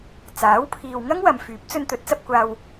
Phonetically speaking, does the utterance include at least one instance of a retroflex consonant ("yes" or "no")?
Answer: no